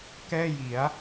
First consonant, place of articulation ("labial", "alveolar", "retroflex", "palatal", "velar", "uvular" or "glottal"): velar